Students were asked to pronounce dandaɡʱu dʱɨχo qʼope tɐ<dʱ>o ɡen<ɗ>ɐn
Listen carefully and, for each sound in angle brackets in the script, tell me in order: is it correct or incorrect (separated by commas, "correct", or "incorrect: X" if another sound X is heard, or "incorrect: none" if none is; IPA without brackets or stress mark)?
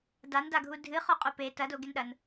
incorrect: d, correct